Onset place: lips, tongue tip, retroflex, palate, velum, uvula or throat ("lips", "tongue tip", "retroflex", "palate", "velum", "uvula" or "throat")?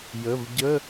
palate